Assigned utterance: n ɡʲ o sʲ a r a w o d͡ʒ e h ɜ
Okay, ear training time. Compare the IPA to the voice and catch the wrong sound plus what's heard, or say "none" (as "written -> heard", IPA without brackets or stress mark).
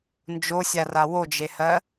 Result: ɡʲ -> d͡ʒ